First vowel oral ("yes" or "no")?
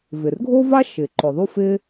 yes